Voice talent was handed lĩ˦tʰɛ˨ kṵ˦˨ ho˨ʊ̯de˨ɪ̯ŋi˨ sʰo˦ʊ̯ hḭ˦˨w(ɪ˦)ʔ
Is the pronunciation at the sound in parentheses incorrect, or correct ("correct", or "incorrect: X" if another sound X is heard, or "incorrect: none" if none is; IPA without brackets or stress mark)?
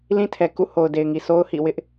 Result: correct